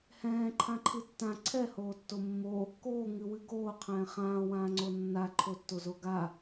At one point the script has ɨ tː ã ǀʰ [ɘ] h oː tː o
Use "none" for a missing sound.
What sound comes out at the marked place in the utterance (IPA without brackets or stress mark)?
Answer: ɛ